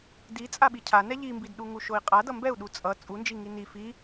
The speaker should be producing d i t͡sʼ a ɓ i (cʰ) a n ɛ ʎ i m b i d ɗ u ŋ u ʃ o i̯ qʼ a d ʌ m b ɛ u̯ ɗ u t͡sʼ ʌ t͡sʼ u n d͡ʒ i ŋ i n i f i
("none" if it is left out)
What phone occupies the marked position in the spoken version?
cʰ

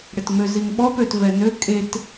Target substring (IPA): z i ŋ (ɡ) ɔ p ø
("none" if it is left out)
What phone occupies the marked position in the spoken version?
ɓ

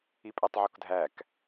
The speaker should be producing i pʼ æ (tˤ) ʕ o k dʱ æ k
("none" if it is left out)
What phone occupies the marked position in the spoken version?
tˤ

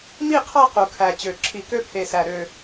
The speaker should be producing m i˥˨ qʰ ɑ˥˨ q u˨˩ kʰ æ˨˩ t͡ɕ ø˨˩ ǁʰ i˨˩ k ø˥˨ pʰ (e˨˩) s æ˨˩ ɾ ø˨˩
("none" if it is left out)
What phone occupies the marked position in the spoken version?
e˨˩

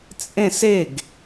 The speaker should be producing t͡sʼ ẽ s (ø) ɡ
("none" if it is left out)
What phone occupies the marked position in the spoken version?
e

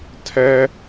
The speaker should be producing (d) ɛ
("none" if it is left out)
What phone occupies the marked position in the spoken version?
tʰ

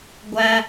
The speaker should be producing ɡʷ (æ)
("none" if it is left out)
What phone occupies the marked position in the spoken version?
æ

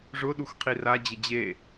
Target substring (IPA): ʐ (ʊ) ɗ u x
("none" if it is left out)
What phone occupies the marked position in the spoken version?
ʊ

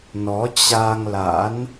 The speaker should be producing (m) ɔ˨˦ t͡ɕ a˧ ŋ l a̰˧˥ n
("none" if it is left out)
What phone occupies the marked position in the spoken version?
n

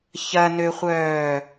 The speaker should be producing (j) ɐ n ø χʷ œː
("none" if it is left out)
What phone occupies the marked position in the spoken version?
ç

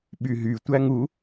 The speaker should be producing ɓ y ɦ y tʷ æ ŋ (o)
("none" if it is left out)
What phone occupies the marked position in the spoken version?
u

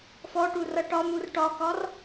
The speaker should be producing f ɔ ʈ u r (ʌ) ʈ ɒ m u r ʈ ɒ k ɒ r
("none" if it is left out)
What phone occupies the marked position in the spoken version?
ʌ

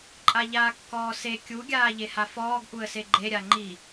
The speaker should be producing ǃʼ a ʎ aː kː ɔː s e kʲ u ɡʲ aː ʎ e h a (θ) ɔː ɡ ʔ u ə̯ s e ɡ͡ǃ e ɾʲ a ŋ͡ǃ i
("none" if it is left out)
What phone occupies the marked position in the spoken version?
f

